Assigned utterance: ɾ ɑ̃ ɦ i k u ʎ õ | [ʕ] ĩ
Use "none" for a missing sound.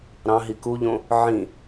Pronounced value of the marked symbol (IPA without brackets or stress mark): ʕ